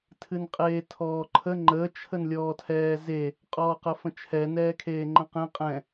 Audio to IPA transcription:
tʰ ɨ n qʼ eː tʰ ɔː ǃʰ ə ŋ͡ǃ ə t͡ʃʰ ə n lʲ ɔː tʰ ɛː z e | qʼ ɔː q ə f ə̃ t͡ʃʰ ɛ n ɛː kʰ eː ŋ͡ǃ ə̃ q ẽ qʼ ɛ̃

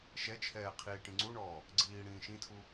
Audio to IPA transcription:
ʃ ɛ t͡ʃʰ ɛː qʰ iː ʈ ĩ ŋ͡ǀ u ɳ ɔː | ɡ͡ǀ iː ɽ ĩː ʃ ĩ tʰ u

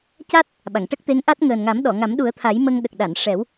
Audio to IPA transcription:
c a˦˥ t̚ | ɓ a˨˩˨ ŋ ʈ ə˦˥ k̚ t̪ e˧˥ ŋ ʔ a˦˥ t̚ ŋ əː˨˩ n ŋ a˨˩˦ m ɗ ɔ˨˩˨ ŋ a˨˩˦ m ɗ u˨˩˦ ə̯ t̪ʰ a˨˩˦ j m ə˧ ŋ ɗ ə˨˩ k̚ ɗ a˨˩˨ n ʂ ɛ˨˩˦ w

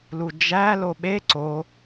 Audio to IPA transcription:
l u d͡ʒ æ l o ɓ e ǀ o

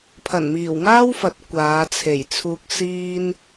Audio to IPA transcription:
pʰ ɐ˨˩ n m iː˨˩ w ŋ aː˥ w f ɐ˨˥ t̚ kʷ aː˨˧ t͡sʰ e˨˩ j t͡sʰ uː˨ k̚ s iː˧ n

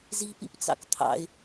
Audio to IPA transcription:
z i p ḭ p t͡s ɑ̰ k t̪ʰ ɑ̰ ɪ̯

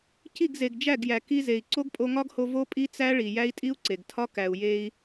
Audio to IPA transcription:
c i˦˨ ɡ z e˨ ɡ d͡ʒ æ˦˨ ɡ j æ˨ k i˧ z e˨ i̯ ǀ o˦ ɡ pʼ o˧ ŋ ɒ˦ ɡ h o˧ v o˦ pʼ i˦ t͡s æ˦ ɭ i˨ j æ˦ i̯ tʼ i˦ u̯ ǀ e˨ ɡ tʰ ɒ˦ k æ˨ u̯ j e˧ i̯

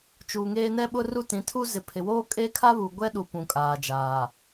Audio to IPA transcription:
t͡ʃ uː˨ ŋ eː˦ n ɛ˦ ɓ ʊ˦ r u˦ t ĩ˨˦ tʰ u˦ z ɪ˨ pʰ ɪ˨ w oː˦ kʼ e˦ kʰ a˦ β u˨ ɡʷ ɛ˦ ɗ u˨ p ũ˨ kʼ aː˨ d͡ʒ aː˨

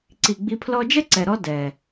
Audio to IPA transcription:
ǀ i˨ ɡ͡b i˧ pʰ l ɔ˧ d͡ʒ ɛ˦ ǀ ɛ˨ ɾ ɔ˧ d ɛ˨

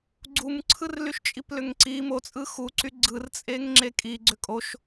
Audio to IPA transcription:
ɡ͡ǀ u m ǀʰ ɯ r l y ʃ t͡ʃʼ i p l ʏ ŋ ǀ i m o t͡sʼ ɯ x u ǀ y ɡ͡ǀ ɯ r t͡sʼ e ŋ ŋ͡ǁ e kʼ i ɡ͡ǀ ʏ kʼ o ʃ

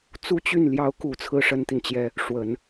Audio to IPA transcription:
t͡s u˥˧ t͡ɕ y˥˩ n l j ɑ˧˥ ʊ̯ k u˨˩ t͡sʰ ɹ̩˥ ʂ ə˥ n t̪ i˨ n t͡ɕ j ɛ˥ | ʂ w ə˨˩˦ n

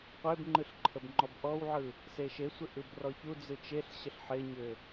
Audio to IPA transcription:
qʷ e b ŋ͡ǃ ɯ ɬ ǃʰ ə b ŋ͡ǃ ɔ b ʔ ɔ w ʕ ɯ | s e ʃ e sʷ ɪ ʔ ɯ b r ɔ ç u d͡z ɯ t͡ʃ e ɬ ɕ ə ɬ ħ ɪ ɲ ʏ

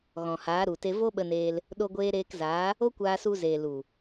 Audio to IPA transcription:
ɣ ɔ̃˨ h aː˨˦ ɾ u˨ t e˧ v o˦ ɓ ə˧ n eː˧ l | ɗ o˧ ɡʷ eː˧ ɾ eː˧ k z aː˨˦ | o˦ kʷ aː˧ s u˧ z eː˨ l u˨

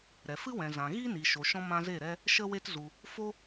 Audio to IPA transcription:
ɾ ɛ˨ f ɨ˦ w ɛ̃˨ z ã˨ ɣ i˦ n i˨ ʃ o˨ ʃ ɔ̃˧ m ã˧ z e˦˨ ɾ ɛ˦ | ʃ ə˦ w e˦ t z u˧ | f o˦

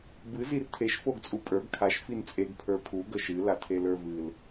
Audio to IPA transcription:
b ɨ z i r tʰ e ʃ f o ɡ t͡sʼ u pʼ ə˞ ɡ kʰ a ʃ f i n t͡sʼ e ɡ pʰ ə˞ pʰ u ɡ ə ʃ ɨ l a tʰ e l ə˞ v ɨ l

